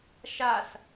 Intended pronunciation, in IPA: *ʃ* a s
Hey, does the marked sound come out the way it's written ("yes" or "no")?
yes